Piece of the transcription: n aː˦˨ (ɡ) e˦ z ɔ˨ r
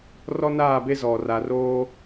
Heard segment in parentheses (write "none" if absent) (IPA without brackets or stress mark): b